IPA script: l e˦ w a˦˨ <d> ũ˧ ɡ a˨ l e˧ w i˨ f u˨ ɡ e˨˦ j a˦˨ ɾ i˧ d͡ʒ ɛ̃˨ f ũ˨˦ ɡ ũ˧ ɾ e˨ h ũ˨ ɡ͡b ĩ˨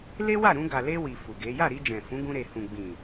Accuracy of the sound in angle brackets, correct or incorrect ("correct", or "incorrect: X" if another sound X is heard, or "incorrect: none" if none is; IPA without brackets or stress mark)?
incorrect: ɾ